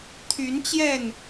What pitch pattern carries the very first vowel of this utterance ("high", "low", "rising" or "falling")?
rising